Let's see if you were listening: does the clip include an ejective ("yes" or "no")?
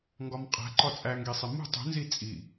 yes